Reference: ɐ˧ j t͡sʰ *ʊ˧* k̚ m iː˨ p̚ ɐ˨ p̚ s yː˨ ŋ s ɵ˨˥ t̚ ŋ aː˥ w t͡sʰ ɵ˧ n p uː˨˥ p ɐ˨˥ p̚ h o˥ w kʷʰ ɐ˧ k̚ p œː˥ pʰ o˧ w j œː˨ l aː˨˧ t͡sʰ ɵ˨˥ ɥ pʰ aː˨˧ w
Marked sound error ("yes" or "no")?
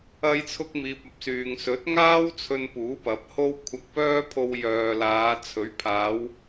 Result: no